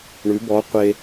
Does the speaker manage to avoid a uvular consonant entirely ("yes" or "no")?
no